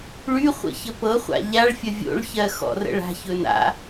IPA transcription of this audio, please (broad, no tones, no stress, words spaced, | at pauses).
ɭyχʷə̰ çəpɤχʷa̰ ʎaɭfʲə vʲo̰ɭçɜ xɔ̰rə̰ɭa̤çɵn a̰